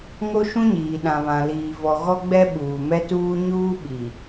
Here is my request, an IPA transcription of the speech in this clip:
ŋ o˦ ʃ ũ˦ ɲ iː˨ ɗ ã˨ β ã˨ l iː˨ v ɔ˨ ɣ ɔ˦ ɡ͡b ɛ˦ ɓ uː˨ m ɛ˦ t uː˦ ɲ uː˦ ɓ i˨

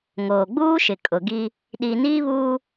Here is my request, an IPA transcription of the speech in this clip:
ŋ oː˨ ɡ͡b uː˦ ʃ ɪ˨ kʼ ʊ˨ ɡ i˦ | ɗ i˨ n iː˦ β uː˦

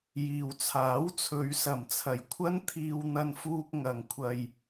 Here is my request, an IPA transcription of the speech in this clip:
j iː˨ w t͡sʰ aː˨˥ w t͡sʰ ɵ˨˧ ɥ s ɐ˨˩ m t͡sʰ ɐ˨˩ j kʷʰ ɐ˥ n t̪ʰ iː˧ w n̪ ɐ˧ n f uː˧ k̚ ŋ ɐ˨˧ ŋ kʷʰ ɐ˧ j

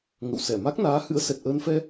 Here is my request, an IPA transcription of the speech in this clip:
ŋ ə̰˧˨ w s ɛ˧˩ m a˦˥ k̚ n aː˨˦ h ɨ̰˧˥ ə̯ s ɛ˨˩ t̚ ʔ əː˧ n f ɛ˧

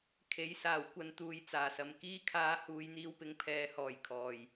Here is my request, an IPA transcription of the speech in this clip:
kʰ e˨˥ j s aː˨˩ w kʷ ɐ˧ n t̪ uː˨ j t͡s aː˨˩ s ɐ˨ m k iː˥ kʰ aː˧ h uː˨˧ j n̪ iː˧ w p ɪ˨ ŋ pʰ ɛː˨˧ h ɔː˨˩ j kʰ ɔː˨˩ j

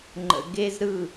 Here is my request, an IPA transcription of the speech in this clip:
ŋ͡ǃ ə̰˨ ɡ e˦ z ɾ ɯ˦˨

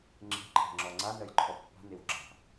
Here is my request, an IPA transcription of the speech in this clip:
ŋ͡ǁ e̤ ǃʰ ɛ̤ ŋ͡ǁ ɔ ŋ͡ǀ a n ɜ j ǃʰ ɔ pː a̤ n e w ɡ͡ǁ a̤

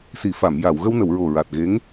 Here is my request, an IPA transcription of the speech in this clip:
s i˨˩˨ f a˨˩˨ m j a˨˩˨ w ɣ ə˧ w n ə˨˩˨ w ɹ o˨˩ ɹ a˨˩ t̚ ɣ e˧˥ ŋ

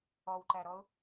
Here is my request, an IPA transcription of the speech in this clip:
ɔ w ǃ æ ɾ ɔ ʊ̯

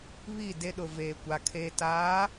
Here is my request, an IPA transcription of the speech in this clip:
β i˦˨ d e˦ ɗ ʊ˨ v eː˨ kʷ a˨ kʰ eː˨ t aː˨˦

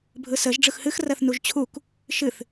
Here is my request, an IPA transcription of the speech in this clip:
bʱ ɯ s ə ʒ ɖ͡ʐ ɯ x h ɨ x r ɜ θ n u ʒ t͡ɕʰ u k | ʃ ɨ θ

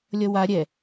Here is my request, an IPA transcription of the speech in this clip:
lʲ ʌ w a ɾʲ ɛ

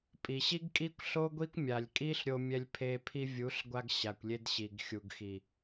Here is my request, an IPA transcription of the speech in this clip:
pʼ i˨ ɕ i˦ ɡ kʼ i˦ kʷ ɬ o˦ ɡʷ i˦ kʷ mʲ a˨ lʲ kʼ i˦ ɬ ɾʲ o˧ mʲ ɛ˧ lʲ pʰ e˧ pʰ i˧ vʲ u˨˦ ɬ ɡʷ a˧ ɡ ɕ a˨ kʷ lʲ e˧ d ɕ i˨ ɡ xʲ u˨ ɡ x i˨

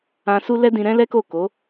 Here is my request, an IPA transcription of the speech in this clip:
ã˧ s u˦ l ɛ˦ d ĩ˧ ɾ ɛ̃˦ l ɛ˦ k o˦˨ k o˨˦

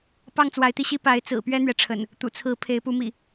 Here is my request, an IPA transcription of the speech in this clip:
p ɑ˥˨ ŋ t͡s w a˨˦ ɪ̯ t̪ i˧ ɕ i˦ p a˨˦ ɪ̯ t͡s ɹ̩˨˩ p ɥ ɛ˦ n̪ ɥ ɛ˨ ʈ͡ʂʰ ə̰˨˩ n | t̪ ṵ˨˩ t͡sʰ ɹ̩˨˦ pʰ e˨˦ ɪ̯ p u˨˦ m ḭ˨˩

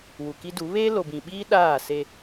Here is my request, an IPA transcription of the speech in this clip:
w u˨ k i˦ d u˨˦ β eː˦ l o˨ b ĩ˨ ɓ iː˦ ɗ aː˦˨ s e˦

